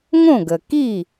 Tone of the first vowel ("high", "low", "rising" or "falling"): falling